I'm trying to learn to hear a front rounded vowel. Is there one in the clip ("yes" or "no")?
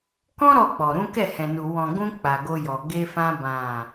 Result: no